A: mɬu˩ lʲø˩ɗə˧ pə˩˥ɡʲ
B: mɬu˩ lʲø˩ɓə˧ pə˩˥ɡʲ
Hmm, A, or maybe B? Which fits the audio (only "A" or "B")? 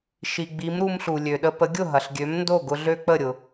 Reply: A